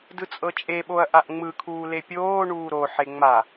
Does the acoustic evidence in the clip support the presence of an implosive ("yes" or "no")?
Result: yes